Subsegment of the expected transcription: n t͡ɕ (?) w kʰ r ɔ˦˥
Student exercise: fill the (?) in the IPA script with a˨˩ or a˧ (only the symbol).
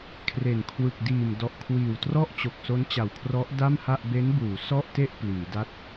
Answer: a˨˩